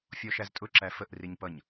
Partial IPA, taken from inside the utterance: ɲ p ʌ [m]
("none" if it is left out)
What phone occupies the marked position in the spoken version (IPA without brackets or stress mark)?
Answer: ɲ